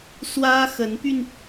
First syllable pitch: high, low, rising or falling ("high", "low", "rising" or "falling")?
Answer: high